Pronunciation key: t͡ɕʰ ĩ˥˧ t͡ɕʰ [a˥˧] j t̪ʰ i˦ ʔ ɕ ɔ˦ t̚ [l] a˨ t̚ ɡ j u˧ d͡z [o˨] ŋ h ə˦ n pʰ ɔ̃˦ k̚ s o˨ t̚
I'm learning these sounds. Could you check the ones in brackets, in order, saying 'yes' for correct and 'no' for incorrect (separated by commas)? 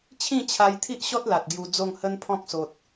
no, yes, no